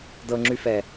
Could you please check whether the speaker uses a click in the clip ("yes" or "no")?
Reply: yes